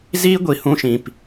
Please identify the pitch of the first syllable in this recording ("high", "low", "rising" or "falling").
high